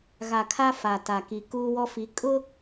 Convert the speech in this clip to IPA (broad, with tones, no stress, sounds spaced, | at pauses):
ɣ a˨ kʰ a˦ f a˨ t a˨ k i˨ k uː˦ w ɔ˦ f i˨˦ kʼ ʊ˦